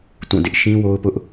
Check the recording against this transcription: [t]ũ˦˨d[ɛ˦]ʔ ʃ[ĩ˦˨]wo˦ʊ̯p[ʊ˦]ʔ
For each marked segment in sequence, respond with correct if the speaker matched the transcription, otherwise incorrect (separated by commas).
correct, incorrect, incorrect, correct